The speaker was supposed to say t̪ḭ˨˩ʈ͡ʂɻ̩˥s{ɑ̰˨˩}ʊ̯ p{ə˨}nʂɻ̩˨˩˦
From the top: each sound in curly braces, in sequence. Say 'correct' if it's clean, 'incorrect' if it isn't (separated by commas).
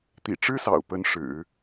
correct, incorrect